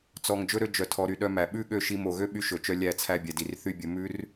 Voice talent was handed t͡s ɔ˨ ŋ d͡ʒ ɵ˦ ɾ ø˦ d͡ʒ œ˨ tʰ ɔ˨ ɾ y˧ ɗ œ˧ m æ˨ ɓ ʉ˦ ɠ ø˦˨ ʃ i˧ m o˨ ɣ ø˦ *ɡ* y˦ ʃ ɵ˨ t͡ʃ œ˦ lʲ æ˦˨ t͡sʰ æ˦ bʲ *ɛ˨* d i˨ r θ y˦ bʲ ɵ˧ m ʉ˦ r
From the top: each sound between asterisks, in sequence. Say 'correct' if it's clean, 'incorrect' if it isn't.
incorrect: ɓ, correct

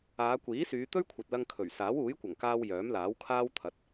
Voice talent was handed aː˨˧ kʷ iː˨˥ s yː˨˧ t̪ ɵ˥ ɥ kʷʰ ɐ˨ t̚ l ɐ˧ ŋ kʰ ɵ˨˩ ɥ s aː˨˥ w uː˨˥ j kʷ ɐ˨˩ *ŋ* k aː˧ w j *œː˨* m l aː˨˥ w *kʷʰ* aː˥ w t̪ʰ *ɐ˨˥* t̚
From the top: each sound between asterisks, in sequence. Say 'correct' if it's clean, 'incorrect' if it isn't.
correct, incorrect: œː˨˥, incorrect: kʰ, correct

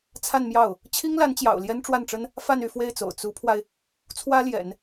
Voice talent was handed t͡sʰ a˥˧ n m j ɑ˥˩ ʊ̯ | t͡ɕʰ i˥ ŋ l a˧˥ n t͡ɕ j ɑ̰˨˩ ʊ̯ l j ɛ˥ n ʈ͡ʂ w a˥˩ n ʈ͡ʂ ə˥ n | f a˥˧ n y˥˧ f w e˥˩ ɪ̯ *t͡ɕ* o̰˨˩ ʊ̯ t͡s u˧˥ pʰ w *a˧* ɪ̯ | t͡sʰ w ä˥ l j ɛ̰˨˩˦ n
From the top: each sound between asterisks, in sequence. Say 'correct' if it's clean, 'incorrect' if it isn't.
incorrect: t͡s, correct

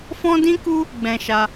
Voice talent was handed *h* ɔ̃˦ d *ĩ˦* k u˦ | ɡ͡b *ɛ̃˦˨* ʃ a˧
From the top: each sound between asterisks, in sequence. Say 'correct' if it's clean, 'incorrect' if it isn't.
incorrect: f, correct, incorrect: ɛ̃˧

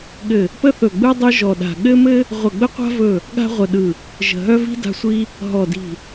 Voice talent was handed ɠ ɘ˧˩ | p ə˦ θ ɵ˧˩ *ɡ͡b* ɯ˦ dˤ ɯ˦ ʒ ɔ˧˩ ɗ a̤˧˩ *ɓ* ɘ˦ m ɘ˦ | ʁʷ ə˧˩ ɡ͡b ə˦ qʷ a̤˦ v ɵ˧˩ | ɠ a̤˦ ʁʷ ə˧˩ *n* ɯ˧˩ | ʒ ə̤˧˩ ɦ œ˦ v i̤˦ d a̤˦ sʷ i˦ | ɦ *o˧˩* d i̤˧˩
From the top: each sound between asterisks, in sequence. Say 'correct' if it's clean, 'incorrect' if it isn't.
correct, incorrect: ɠ, incorrect: ɗ, incorrect: ɔ˧˩

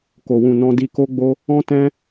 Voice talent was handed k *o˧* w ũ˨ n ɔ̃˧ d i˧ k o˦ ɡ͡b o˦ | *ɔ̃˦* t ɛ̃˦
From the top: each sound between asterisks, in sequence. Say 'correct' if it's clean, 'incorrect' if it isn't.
incorrect: o˨, correct

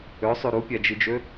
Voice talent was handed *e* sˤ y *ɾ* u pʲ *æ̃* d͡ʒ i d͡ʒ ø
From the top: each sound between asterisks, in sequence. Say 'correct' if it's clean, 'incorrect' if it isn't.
incorrect: ø, correct, incorrect: æ

